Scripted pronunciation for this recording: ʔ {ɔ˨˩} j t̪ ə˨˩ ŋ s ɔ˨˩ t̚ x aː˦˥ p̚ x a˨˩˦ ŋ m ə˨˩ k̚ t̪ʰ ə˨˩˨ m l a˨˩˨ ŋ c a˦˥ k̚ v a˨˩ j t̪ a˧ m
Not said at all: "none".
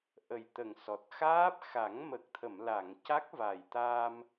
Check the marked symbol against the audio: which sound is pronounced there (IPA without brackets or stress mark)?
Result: ə˨˩